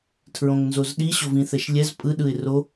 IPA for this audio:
tʰ ɹ õ ŋ n z o z ɗ i ɕ o v ĩ θ ɛ ʃ lʲ ɛ z pʼ ɯ ɗ ɯ ɪ̯ r o

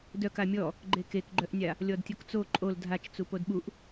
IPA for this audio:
d œ k a mʲ ɔ | ɡ͡ǃ e k e k ɡ͡ǃ œ ʔ nʲ a | lʲ ɔ d tʲ o k t͡s o ǃʼ o l dʱ a t͡ʃ t͡s u p o d ɓ u ʔ

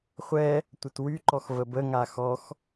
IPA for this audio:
χʷ ɛ | tʷ ə t w y ǃ ɔ x v ə b ə ŋ a x ɔ x

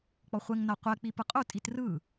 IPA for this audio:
k͡p ɔ χʷ ɛ ŋ n a qʷ ɛ k͡p i p ɯ qʼ u tʼ i t r ɯ

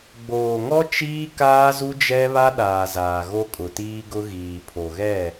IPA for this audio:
ɡ͡b oː˨ ŋ ɔ˦ t͡ʃ iː˦ k aː˦ z u˦ d͡ʒ ɛ˦ β a˦ ɗ aː˨ z aː˨ ɣ o˦ kʼ ʊ˨ t iː˦ ɡ ʊ˦ ɣ iː˨ pʰ o˨ ɣ ɛ˦˨

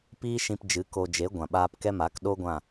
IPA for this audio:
p iː˦ ʃ ĩ˧ p d͡ʒ ɨ˨˦ k o˧ d͡ʒ e˨˦ ɡʷ ã˨ ɓ aː˧ p k ɛ˦ m a˨˦ k ɗ o˦ ɡʷ ã˦˨

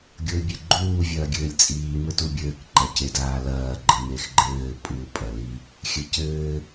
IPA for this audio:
ɡʲ o ɪ̯ bʲ e ɡ͡ǃ uː vʲ ɐː ɡʲ ɘː lʲ t͡sʼ iː m ɘ t u bʲ ɘː k ǃ ɐ c e d aː l ɐː ɡ͡ǃ ɘ m e x ɡ͡ǃ ɘː pʼ u pʼ ɐ l i | xʲ ɘ c ɘː

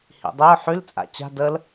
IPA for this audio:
h ḭ dˤ y ʊ̯ ħ y l t͡sʼ a̰ t͡ɕ a̤ d ə l

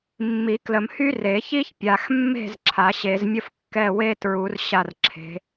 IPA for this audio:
mː i˨˩˦ k l ə˨ m h y˥ r e˨˩˦ ç i˥ ç pʲ a˨ x mː e̤˥˨ z ǁʰ a˨˩˦ ɕ e˨˩˦ z mʲ ə˥ f kː ɛ˧˥˧ w e˥ t ɹ u˨˩˦ r ɕ a˥˨ r ǁʰ e̤˨˦

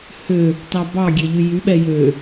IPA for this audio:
h ø | t ɑ b ɑ ɡʲ e ʎ y j y ɓ ɛ j ø

